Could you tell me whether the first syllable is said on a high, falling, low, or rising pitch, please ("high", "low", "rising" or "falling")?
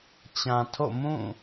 low